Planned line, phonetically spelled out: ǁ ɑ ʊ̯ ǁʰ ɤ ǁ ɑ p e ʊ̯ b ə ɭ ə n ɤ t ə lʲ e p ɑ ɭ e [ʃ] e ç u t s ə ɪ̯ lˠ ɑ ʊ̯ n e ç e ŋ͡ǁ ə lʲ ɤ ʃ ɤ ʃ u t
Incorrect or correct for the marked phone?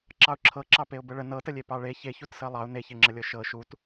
incorrect: ç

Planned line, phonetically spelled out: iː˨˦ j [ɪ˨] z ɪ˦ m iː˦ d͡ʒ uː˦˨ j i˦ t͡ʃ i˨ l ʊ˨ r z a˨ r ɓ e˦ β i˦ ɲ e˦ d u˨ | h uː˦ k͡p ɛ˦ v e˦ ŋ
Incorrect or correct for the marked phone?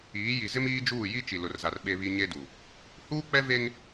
incorrect: i˨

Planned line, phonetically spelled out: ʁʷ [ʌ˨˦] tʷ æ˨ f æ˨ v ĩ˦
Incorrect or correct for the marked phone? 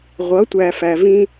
correct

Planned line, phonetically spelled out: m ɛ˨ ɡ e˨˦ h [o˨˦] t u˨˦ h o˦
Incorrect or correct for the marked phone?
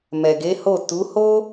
incorrect: o˦˨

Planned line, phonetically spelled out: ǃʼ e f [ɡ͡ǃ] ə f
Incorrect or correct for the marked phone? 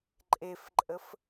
incorrect: ǃʼ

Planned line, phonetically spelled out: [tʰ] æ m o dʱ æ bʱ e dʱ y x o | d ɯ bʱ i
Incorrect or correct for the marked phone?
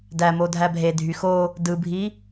incorrect: d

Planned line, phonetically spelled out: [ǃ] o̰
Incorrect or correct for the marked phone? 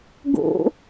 incorrect: ɡ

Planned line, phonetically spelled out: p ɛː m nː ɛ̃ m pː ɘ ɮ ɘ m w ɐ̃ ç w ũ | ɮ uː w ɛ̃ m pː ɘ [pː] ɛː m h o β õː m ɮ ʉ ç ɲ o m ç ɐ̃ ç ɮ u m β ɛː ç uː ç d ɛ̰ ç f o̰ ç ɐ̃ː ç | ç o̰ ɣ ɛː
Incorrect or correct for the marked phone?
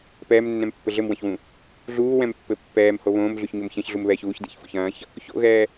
correct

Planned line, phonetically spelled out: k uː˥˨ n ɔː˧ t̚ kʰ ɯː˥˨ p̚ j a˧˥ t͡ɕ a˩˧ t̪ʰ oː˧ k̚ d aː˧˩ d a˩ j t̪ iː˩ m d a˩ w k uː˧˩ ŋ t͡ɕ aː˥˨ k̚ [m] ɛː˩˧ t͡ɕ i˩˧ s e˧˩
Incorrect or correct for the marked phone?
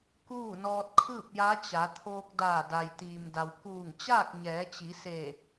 incorrect: ɲ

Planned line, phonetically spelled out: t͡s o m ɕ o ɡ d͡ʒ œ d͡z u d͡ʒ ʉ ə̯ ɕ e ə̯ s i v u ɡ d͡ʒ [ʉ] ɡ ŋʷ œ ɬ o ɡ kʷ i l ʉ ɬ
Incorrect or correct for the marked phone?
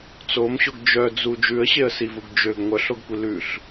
incorrect: ø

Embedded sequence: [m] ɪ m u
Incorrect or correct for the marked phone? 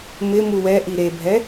correct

